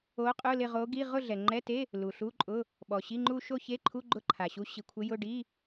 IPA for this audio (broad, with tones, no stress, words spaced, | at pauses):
o˧˥qʼʊ˧˥˧ lɪ˥˧ʁo˧˥ ɡi˧˥˧ ʁʊ˥˧ɮɛ˩ŋ͡ǃɛ˧˥˧te˧˥˧ | lu˩ɬu˧˥˧ǃʼʊ˧˥˧ | ɓɔ˩ɕi˧˥˧ŋ͡ǃu˥˧ ʃo˥˧çe˧˥˧ǃʰu˧˥˧ ɡ͡ǃʊ˥˧ǃʰa˩ɕu˧˥ ɕi˩kʷʰɪ˧˥jʊ˧˥˧ ɖi˧˥˧